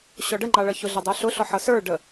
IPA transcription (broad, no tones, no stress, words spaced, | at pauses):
ɕɔɖəŋ͡ǃɑɭʌ çʊɮɛ dˤə˞ɬʊɬɔ ħʌsə˞ ɖə